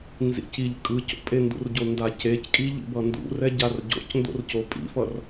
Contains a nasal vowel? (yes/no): no